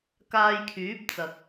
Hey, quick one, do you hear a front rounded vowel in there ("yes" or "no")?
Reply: yes